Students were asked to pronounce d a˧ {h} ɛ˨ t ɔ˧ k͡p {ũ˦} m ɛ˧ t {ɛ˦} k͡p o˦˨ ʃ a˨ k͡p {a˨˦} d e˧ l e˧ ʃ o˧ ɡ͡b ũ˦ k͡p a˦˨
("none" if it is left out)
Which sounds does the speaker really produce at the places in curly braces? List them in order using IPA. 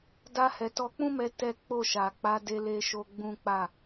h, ũ˦, ɛ˦, a˨˦

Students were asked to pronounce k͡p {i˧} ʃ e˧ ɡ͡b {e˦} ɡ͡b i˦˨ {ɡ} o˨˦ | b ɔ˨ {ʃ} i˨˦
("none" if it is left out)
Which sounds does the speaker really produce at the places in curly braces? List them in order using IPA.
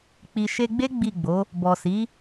i˧, e˦, ɡ͡b, s

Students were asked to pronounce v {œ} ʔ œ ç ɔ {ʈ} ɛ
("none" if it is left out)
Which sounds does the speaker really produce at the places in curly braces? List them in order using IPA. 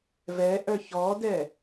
ɛ, d

